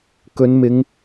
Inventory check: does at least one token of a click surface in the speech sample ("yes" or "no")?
no